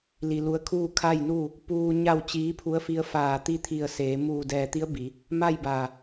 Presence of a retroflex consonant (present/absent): absent